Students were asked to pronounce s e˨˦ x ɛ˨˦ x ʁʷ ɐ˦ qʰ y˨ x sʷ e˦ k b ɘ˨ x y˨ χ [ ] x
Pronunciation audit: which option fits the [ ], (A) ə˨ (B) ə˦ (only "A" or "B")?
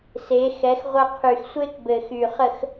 A